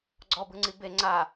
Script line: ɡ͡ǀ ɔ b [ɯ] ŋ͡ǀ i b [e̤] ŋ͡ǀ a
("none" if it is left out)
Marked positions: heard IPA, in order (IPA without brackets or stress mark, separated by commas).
ɯ, e